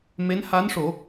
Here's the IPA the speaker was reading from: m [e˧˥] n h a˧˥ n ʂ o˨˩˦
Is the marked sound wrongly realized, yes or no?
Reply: no